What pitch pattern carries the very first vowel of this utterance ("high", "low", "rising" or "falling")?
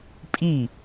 falling